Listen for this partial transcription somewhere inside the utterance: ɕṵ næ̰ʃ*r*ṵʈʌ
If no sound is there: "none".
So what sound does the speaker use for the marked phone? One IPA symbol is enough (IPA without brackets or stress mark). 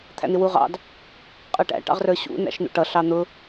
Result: n̪